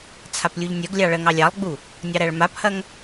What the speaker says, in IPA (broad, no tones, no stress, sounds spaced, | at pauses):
t͡sʰ a p lʲ u ʎ nʲ ɜ ɡ lʲ ɑ ɭ ɜ ŋ ɑ lʲ ɑ lˠ ɡ͡b u | nʲ ɑ ɾ æ ɭ m a p h ɐ ŋ